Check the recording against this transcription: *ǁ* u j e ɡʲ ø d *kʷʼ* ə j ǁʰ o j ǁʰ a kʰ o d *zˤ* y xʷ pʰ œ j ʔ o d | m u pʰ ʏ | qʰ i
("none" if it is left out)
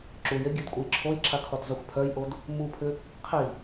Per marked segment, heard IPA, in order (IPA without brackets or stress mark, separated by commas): ǁ, kʷʼ, zˤ